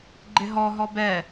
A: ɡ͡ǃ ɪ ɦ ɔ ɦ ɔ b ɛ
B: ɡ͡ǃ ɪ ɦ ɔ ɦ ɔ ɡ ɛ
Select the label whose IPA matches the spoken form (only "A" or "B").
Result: A